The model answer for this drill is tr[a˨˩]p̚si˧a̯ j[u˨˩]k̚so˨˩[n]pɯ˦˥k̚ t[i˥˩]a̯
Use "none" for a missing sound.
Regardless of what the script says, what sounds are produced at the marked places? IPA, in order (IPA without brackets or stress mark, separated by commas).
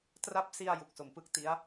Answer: a˦˥, u˨˩, m, i˦˥